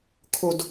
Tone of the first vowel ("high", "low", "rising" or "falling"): low